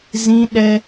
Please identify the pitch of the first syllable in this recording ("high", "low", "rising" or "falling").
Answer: high